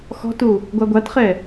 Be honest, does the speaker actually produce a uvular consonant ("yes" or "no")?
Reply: yes